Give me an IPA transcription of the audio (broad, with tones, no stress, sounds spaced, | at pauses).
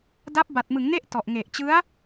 d a˦˥ p̚ b a˨˩ t̚ m ɯ˩˦ ŋ n e˦˥ ʔ t ɔ˨˩ ʔ ŋ e˨˩ ʔ t͡ɕ ɯ˦˥ a̯